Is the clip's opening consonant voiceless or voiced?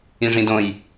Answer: voiced